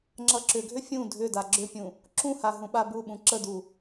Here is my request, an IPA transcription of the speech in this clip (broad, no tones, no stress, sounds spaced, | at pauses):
ŋ͡ǁ ʌ ǁ ʏ ɡʱ ʏ fʲ ũ dʱ ʏ d a ɡ͡ǁ ʏ pʲ ũ | ǁ ũ h a ɦ ũ ɓ a b u ɓ ũ ǁ ə d u